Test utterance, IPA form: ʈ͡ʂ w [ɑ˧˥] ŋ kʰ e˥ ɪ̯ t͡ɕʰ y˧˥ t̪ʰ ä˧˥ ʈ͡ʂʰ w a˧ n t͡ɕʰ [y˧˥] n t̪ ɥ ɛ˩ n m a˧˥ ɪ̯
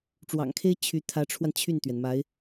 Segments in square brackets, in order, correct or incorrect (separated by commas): incorrect, incorrect